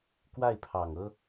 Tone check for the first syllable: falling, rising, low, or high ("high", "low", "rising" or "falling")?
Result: falling